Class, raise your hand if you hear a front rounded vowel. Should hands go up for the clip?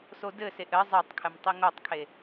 no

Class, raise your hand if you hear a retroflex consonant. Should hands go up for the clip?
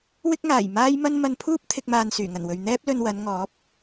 no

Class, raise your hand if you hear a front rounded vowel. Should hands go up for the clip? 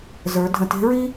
no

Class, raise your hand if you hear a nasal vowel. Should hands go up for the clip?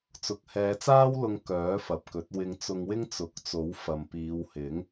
no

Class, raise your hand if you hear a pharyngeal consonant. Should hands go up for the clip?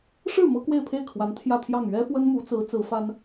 no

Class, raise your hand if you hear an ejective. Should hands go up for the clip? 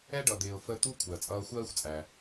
yes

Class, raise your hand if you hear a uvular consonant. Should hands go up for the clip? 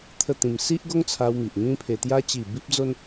no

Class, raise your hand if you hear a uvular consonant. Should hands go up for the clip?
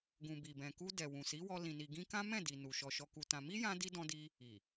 no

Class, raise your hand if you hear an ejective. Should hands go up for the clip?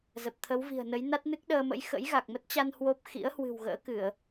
no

